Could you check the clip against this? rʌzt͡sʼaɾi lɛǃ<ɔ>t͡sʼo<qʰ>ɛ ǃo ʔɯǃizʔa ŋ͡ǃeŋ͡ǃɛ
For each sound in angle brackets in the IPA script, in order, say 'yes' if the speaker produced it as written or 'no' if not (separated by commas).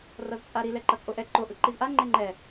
no, no